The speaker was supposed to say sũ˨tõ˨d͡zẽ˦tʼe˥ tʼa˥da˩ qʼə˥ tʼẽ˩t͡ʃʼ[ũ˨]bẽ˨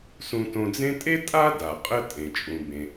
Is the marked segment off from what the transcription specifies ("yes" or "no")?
no